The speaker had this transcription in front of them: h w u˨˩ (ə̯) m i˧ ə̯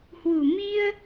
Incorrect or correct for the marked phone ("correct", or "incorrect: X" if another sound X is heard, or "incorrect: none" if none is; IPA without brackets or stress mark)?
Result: incorrect: none